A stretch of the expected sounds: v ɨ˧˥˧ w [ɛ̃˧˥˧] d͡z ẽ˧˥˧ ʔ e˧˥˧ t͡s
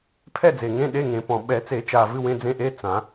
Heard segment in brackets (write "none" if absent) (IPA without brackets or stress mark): ẽ˧˥˧